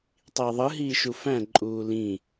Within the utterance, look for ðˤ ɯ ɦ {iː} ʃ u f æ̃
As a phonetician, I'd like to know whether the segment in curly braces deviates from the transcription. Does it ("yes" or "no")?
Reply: no